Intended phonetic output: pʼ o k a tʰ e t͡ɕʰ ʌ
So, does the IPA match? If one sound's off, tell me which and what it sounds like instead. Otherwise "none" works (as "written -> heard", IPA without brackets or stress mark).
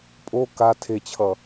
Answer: none